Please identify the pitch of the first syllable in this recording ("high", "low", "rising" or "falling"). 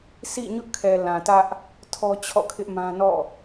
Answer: falling